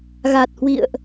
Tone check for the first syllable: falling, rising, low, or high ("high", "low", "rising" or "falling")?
low